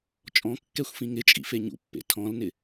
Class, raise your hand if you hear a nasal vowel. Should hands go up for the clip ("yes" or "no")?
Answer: yes